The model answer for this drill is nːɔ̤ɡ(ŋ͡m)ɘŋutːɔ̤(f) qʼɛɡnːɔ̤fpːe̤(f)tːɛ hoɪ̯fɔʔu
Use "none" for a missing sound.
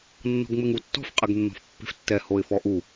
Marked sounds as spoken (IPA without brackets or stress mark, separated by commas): ŋ͡m, f, f